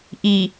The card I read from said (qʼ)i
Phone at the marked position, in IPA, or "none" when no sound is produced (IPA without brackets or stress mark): ʔ